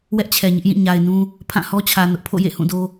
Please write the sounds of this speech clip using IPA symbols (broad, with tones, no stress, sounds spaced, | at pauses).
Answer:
w ɛ˦ ʔ t͡ɕʰ ɛ˨ ɲ ɪ˦ ʔ j ĩ˦˨ ɲ a˨ ɪ̯ n ũ˦ | pʰ ã˦˨ h ɔ˦ t͡ɕʰ ä˨ n ʊ˦ ʔ pʰ o̰˦˨ j ḛ˦˨ h ũ˦˨ d o˦